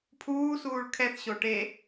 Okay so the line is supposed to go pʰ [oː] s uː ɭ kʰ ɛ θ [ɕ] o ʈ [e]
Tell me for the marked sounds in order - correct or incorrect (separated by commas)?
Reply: incorrect, correct, correct